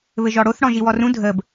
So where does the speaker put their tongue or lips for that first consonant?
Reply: lips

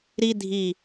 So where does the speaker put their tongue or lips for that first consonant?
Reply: tongue tip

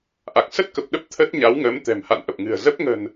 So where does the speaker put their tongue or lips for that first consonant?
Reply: throat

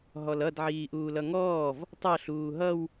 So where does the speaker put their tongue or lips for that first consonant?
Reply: throat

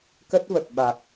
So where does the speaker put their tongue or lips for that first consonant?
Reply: velum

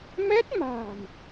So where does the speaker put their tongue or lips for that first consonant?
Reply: lips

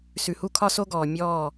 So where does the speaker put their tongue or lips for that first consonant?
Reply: tongue tip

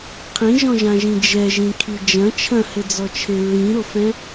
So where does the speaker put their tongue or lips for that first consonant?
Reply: uvula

